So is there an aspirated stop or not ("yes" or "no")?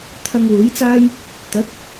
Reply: yes